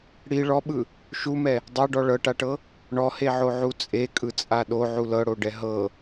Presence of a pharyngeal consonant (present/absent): present